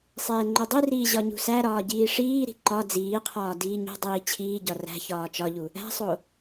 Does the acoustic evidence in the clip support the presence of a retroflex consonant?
yes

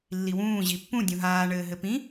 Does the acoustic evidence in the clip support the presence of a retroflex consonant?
yes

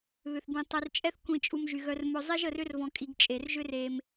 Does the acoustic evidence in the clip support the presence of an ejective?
yes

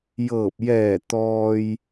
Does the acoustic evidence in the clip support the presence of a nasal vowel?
no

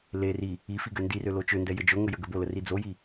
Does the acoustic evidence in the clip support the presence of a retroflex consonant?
no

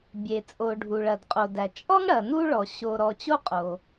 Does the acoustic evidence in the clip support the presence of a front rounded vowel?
no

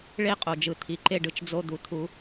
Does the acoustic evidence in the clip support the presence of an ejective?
yes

